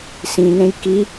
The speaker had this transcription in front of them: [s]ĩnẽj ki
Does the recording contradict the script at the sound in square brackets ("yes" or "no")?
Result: no